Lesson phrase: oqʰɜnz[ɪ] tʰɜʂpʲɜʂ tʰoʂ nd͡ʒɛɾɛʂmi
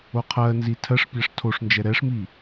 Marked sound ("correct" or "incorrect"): incorrect